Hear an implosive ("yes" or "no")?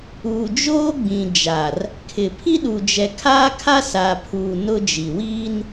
yes